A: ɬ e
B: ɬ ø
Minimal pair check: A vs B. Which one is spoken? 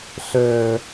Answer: B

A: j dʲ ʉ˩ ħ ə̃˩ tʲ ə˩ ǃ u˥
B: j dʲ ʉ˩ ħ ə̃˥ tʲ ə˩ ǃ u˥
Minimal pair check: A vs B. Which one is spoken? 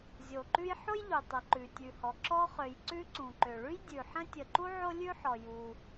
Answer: B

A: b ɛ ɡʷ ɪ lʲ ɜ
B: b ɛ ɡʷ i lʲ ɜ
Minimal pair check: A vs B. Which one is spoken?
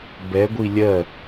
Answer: B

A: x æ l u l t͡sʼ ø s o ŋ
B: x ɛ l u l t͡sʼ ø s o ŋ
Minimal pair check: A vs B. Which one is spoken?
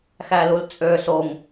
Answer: A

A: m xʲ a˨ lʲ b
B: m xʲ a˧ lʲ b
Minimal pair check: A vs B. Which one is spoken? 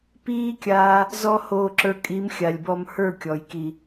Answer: A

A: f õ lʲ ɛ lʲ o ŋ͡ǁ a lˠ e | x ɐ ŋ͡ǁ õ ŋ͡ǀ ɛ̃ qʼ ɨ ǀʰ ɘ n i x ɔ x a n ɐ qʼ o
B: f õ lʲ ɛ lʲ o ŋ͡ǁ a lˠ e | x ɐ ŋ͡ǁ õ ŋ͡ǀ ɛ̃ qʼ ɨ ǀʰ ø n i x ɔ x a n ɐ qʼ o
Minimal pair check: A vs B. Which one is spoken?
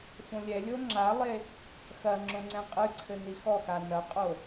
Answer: A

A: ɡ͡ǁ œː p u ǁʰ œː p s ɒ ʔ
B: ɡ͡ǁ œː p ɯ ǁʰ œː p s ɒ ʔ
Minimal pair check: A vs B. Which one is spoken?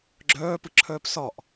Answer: B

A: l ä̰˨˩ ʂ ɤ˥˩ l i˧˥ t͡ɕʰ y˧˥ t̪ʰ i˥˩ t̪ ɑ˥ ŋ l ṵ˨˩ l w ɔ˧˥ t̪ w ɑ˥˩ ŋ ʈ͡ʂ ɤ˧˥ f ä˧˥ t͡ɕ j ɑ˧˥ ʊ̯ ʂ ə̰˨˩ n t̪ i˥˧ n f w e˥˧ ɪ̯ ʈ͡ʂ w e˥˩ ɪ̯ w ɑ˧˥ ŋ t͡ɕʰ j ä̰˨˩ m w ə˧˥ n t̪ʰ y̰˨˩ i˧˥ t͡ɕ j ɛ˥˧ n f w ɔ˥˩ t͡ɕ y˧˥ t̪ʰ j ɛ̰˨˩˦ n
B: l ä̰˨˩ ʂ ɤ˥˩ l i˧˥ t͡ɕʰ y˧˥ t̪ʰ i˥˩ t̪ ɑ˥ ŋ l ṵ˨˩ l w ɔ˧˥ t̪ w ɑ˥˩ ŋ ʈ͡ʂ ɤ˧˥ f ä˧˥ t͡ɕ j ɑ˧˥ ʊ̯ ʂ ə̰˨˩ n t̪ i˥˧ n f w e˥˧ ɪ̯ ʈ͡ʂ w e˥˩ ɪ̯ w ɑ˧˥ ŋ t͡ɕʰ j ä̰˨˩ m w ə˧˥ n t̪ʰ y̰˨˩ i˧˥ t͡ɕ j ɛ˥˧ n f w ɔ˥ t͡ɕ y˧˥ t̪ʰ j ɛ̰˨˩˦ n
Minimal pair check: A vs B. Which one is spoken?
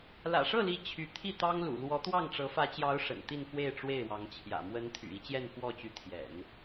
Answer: A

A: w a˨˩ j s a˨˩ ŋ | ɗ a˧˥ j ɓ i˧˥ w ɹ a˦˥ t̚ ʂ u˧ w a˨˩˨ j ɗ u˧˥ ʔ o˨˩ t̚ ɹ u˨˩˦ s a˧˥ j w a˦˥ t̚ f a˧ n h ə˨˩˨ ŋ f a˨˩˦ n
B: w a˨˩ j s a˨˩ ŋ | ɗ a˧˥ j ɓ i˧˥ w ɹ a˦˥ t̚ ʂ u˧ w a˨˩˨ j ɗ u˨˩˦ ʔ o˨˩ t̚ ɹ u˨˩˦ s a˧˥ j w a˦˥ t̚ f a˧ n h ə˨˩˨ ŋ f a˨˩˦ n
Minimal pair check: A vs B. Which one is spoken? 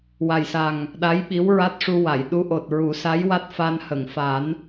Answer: A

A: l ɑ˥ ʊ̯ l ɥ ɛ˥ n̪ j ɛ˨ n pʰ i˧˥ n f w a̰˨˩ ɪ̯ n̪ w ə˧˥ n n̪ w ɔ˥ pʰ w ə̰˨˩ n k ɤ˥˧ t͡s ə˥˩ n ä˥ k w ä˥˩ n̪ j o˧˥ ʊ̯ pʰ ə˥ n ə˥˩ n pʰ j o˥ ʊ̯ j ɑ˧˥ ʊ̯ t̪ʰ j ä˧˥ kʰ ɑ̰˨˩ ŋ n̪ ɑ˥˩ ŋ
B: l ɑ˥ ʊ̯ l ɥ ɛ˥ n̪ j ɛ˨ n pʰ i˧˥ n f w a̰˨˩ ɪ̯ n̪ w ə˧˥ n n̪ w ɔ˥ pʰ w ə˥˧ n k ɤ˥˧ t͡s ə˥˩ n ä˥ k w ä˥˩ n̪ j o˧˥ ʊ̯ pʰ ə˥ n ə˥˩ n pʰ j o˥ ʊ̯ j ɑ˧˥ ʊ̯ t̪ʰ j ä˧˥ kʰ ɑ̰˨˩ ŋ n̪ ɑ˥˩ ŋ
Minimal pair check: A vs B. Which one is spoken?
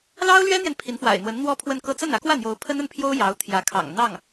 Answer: B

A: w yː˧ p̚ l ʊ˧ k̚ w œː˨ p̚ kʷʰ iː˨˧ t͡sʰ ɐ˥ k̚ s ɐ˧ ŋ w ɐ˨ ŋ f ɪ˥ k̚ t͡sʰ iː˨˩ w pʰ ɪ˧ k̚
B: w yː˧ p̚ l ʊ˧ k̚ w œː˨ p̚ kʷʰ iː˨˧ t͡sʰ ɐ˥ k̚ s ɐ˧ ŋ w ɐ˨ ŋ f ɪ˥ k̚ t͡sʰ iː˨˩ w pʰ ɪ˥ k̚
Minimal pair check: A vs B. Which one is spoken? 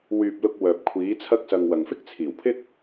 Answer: B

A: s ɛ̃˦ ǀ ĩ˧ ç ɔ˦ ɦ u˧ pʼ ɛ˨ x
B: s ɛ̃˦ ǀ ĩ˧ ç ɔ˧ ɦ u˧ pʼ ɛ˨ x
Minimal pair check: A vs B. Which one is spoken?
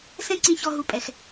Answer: B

